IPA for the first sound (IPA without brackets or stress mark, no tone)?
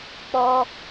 k͡p